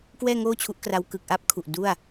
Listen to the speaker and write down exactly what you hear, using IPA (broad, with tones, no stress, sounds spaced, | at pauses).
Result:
k w ɛː˥˩ ŋ oː˥˩ t͡ɕʰ u˦˥ ʔ k r a˦˥ w k ɯ˨˩ k̚ ʔ a˥˩ p̚ kʰ u˨˩ ʔ d u˥˩ a̯